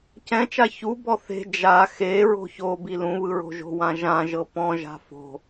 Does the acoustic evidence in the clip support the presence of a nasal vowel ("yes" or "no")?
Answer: yes